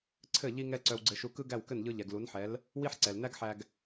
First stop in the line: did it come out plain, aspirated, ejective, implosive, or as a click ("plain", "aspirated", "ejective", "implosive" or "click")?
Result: click